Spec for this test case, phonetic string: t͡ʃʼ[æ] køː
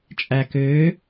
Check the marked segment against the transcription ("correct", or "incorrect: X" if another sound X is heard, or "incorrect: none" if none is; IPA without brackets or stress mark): correct